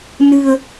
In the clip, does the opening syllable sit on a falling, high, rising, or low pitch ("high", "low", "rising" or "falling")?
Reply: low